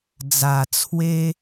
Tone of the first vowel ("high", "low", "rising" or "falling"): low